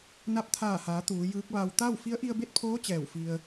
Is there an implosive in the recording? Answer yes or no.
no